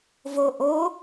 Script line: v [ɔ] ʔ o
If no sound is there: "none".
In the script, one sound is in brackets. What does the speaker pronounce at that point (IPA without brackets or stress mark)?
o